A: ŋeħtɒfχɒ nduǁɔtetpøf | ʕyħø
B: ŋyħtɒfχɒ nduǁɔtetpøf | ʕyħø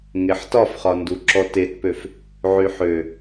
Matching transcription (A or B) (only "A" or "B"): A